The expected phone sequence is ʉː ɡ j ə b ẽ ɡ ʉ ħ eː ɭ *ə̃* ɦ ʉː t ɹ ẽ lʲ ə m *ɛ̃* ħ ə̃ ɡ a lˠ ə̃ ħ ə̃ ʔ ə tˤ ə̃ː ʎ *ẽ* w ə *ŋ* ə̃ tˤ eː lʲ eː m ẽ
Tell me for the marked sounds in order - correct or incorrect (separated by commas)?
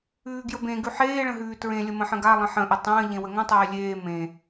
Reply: correct, incorrect, correct, correct